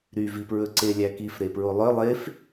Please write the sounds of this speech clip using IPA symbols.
ɾyvipɹɵǀe lʲækifɾepɹo lˠœ lˠef

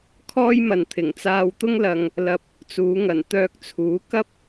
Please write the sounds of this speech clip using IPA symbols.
kʰɔː˥jmɐ˨nt̪ʰɪ˨˩ŋ t͡saː˧wt̪ʊ˥ŋlɐ˧ŋ | lɐ˧p̚ | t͡suː˨˧ŋɐ˨˩n t̪œː˧k̚t͡sʰuː˨˥ kɐ˥p̚

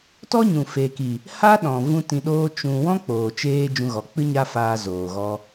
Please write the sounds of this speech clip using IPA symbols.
tɔ˦ɲũ˨ fe˨ki˨ | ha˦ɗɔ̃˨ vũ˦tĩ˧ɗoː˦ t͡ʃũ˧ wɔ̃˦k͡poː˨t͡ʃeː˧ d͡ʒũ˧ɣɔ˨k͡pɨ˦ ɲa˦faː˧ zoː˨ɣɔ˧

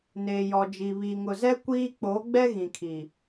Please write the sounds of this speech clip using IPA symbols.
neː˨jɔ˨d͡ʒi˨ βiː˨ŋʊ˨zɛ˦ kʷiː˦ k͡poː˨˦ɡ͡bɛ˦ ɣĩ˨kʰi˨

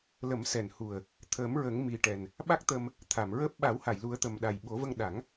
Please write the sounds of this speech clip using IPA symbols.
lə˨˩˦msɛ˨˩nhu˨˩ə̯ | t̪ʰəː˨˩˦m ɹə˨˩˦ŋ mi˨˩ʈɛ˨˩n | ɓa˦˥k̚t̪ə˧m | t̪ʰa˨˩˨mɹəː˦˥p̚ ɓa˨˩˦wha˨˩˨jlu˨˩˦ə̯ t̪ə˨˩mɗa˨˩jɓo˨˩˦və˧ŋ ɗa˨˩˦ŋ

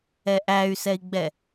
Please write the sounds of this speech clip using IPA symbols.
ɛʔæy̯sɛi̯ɡ͡bɛ

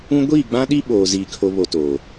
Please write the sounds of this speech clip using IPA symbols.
ũ˦ ɡʷiː˦˨ɡ͡bã˦ɗi˦ ɓoː˨ ziː˨kʰo˨βo˨ toː˨

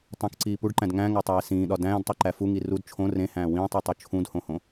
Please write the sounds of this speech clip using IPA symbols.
tˤõkǀiː puɖǃæ̃d ŋæ̃ŋætˤeː sĩːɗɒ dæ̃ːdtˤiǃæ fuŋi rud t͡ʃʰõ rẽhæ̃ː wĩːtˤitˤu t͡ʃʰũdhõhõ

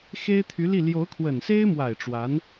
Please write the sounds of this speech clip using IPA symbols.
xe˥ɪ̯t̪ʰy˧˥li˥˩ ljo˧˥ʊ̯kʰwə˨˩nse˥ɪ̯mwa˨˩ɪ̯ ʈ͡ʂwa˧˥n

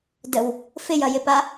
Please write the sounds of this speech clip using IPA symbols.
dəw | fɪjɐjɪpa

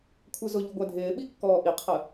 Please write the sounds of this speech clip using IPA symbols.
kʷʰɜzʊʎu ɡʷædʱɪːɓi kːɔːʔiqʰə

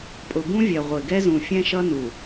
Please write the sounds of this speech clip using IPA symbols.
pʼʊ˨bũ˦vʲɛ˨ ʁʷɪ˨ ɡɛ˦zũ˨fʲɛ̃˦ʃʌ˦ nu˨

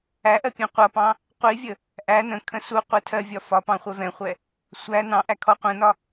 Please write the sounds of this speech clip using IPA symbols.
æʔɜ pʲɛ̃qʷʌpɑ̃ | qʷivʲə | ʔæ nə̃kʰə̃ suqʷɛ tʰɜ vʲɒfɒpɑ̃ χʷɛvɛ̃χʷɛ | sʷæ nɑ̃ʔæ kʰɔqʷə̃nɒ

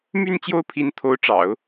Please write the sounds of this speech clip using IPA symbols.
my˥˧n t͡ɕjo˥˩ʊ̯pʰi˧˥nt̪ʰo˧˥ʊ̯ʈ͡ʂɑ̰˨˩˦ʊ̯

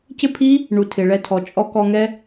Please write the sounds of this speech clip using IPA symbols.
cɪ˦pʰi˦ | ɳu˨ tʰɪ˨ɭɛ˧tʰɔ˨t͡ʃʼɔ˦ kɔ˧ŋɛ˦

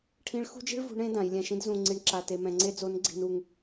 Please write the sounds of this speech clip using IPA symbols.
ʈʰĩ˧˥ɭxṳ˥d͡ʒi̤˥ɭ vṳ˧˥ɳẽ˧˥ dã˩˧jlʲɛ̃˧ʃĩ˥d zũ˧ ŋ͡ǀi˧ɳǁa˧te˧ mɛ̃˧ŋ͡ǀe˥ d͡zo˧˥nɡ͡ǀi̤˧nu˧ŋ

